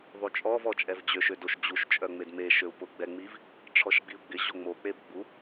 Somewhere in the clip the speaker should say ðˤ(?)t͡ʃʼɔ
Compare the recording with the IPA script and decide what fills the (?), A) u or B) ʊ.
A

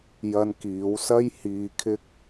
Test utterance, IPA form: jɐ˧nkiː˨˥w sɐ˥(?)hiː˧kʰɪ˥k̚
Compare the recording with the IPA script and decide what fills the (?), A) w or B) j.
B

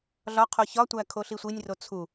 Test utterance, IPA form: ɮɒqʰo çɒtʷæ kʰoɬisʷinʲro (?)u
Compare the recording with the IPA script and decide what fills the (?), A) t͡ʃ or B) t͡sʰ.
B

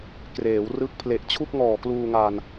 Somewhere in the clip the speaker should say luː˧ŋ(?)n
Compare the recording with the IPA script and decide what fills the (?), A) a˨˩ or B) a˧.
B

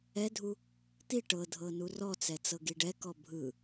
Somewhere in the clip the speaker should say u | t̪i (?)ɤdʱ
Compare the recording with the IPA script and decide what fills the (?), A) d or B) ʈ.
B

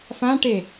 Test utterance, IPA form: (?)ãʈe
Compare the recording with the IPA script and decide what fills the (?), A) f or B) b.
A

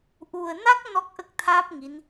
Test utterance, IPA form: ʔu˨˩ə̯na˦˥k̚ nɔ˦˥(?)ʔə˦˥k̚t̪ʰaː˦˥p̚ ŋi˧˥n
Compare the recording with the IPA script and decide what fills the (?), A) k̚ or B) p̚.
A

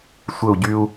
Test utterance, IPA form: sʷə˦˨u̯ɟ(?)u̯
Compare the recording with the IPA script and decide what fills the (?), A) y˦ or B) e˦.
A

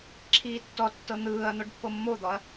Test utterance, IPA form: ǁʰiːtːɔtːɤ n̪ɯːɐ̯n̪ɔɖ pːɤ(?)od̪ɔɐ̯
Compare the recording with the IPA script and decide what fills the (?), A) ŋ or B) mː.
B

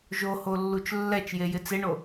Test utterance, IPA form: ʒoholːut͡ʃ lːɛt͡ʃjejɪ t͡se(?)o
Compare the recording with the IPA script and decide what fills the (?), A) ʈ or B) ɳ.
B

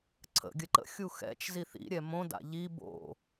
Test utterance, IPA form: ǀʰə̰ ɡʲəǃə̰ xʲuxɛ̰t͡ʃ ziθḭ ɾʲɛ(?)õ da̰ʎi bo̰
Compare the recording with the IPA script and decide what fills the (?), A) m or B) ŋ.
A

